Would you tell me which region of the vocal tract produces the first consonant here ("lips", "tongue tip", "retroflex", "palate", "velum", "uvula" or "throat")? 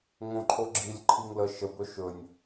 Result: velum